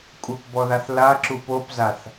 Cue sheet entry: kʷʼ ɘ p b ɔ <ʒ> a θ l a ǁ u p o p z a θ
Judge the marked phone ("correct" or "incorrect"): incorrect